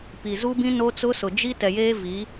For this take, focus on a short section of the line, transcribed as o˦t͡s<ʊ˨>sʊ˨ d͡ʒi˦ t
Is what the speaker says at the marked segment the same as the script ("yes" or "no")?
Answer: no